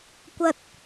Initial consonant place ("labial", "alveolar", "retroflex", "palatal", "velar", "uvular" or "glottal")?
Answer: velar